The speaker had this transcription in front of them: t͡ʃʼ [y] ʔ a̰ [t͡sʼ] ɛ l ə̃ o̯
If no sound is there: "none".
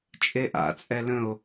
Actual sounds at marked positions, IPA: e, t͡sʼ

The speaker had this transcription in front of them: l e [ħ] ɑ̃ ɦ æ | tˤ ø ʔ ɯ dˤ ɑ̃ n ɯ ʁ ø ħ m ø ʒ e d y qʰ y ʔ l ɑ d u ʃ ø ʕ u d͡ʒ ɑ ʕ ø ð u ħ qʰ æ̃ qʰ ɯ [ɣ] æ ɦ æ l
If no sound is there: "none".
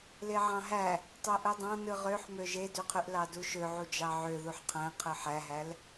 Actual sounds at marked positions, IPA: ʕ, ħ

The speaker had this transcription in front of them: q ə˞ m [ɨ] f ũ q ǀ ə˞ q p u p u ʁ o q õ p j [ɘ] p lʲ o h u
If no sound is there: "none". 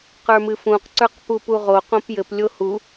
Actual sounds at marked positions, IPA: ɨ, ɘ

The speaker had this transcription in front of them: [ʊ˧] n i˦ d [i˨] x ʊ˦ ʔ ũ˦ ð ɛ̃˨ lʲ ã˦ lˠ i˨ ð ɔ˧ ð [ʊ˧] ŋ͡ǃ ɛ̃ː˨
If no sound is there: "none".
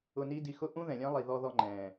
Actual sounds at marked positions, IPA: ʊ˧, i˧, ɔ˧

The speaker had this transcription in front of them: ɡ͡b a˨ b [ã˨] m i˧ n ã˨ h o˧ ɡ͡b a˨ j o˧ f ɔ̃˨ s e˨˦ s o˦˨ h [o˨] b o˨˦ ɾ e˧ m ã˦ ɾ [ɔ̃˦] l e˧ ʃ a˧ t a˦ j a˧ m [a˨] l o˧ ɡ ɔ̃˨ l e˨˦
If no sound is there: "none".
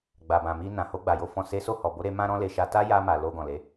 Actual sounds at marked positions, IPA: ã˨, ɔ˨, ɔ̃˦, a˨

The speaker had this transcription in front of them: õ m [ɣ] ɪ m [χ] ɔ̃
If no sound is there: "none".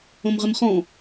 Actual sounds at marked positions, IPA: ʁ, χ

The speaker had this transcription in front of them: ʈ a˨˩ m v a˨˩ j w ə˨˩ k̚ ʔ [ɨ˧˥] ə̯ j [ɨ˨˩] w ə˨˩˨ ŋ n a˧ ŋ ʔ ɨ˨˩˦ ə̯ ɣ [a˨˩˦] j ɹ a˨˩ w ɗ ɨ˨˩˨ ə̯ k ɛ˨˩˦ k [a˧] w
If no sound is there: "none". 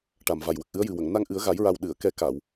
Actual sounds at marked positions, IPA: ɨ˧˥, ɨ˨˩, a˨˩˦, a˨˩˨

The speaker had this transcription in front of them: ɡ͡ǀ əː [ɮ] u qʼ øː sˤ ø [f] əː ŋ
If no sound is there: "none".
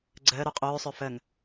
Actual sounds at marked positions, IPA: ɾ, f

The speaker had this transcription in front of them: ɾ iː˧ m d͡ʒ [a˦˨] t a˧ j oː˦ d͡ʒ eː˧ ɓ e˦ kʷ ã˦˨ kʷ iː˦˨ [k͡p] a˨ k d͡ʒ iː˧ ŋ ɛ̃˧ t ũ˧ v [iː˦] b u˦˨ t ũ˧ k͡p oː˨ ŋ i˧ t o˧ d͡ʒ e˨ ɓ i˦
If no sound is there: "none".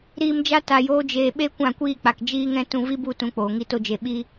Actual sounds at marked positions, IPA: a˦, k͡p, i˦

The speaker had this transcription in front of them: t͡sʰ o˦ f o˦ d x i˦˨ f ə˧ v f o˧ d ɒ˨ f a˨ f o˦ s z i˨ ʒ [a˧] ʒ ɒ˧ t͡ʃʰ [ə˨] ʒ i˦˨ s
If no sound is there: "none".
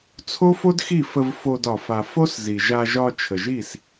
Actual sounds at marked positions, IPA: a˧, ə˨

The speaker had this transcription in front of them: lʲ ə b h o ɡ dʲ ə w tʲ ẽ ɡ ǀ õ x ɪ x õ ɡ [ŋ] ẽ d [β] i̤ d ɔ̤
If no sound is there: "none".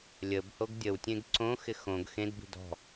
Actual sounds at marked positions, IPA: x, b

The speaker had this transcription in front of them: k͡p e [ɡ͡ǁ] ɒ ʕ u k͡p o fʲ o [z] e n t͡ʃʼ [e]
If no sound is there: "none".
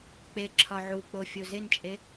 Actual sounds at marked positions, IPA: ǁʰ, z, e

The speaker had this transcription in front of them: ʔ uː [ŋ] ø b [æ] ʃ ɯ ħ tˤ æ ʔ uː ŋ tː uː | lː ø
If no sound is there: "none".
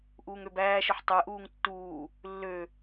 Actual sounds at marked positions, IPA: ŋ, æː

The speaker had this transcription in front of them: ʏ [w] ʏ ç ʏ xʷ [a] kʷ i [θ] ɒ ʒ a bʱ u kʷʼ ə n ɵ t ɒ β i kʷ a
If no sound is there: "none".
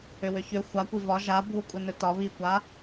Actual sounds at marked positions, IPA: w, a, v

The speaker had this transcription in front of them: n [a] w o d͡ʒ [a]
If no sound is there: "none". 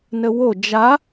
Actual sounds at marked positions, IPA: ə, a

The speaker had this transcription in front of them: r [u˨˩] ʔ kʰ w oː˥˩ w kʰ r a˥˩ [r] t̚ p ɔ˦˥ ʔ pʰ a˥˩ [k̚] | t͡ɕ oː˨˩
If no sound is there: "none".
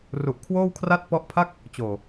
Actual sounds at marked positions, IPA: u˨˩, none, k̚

